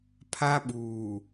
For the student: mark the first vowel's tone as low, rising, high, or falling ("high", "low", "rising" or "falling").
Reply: high